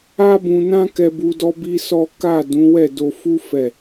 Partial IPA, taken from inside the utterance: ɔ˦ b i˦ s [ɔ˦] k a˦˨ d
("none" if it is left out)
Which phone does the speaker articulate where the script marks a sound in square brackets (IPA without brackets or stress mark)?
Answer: ɔ˦